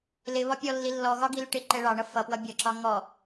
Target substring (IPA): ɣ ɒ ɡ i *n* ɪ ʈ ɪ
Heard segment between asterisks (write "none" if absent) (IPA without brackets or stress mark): l